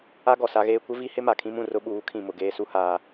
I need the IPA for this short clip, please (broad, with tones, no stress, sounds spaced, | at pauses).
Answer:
a˦ ɡ ɔ˨ s a˦ ɣ eː˦ kʷ ɪ˦ v i˦ h ɪ˦ m a˨ kʰ ĩ˦ m ũ˨ r ʊ˦ ɓ uː˨˦ kʰ ĩ˨ m ʊ˨ ɡ eː˦ s u˦ h aː˦